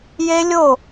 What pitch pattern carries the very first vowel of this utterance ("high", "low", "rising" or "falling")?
high